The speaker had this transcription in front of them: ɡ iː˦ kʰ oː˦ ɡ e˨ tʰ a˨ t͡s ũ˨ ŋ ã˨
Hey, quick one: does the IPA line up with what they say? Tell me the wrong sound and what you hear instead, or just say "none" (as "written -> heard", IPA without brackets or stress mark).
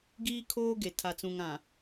none